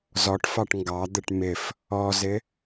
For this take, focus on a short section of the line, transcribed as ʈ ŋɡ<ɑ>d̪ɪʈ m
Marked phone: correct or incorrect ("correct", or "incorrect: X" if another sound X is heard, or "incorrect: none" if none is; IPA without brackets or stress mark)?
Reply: correct